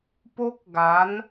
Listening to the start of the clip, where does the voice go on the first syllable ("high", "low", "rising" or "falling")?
high